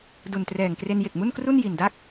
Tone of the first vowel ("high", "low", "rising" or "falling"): low